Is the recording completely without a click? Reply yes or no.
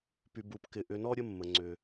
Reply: no